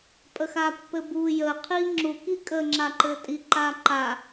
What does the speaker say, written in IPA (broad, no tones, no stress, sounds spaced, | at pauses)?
pʼ ə x a pː ɘ b u j ə qʰ i ŋ͡ǁ u k i kʼ ə ŋ͡ǁ a ǃ ɘ tʼ i ǃ a ǃ a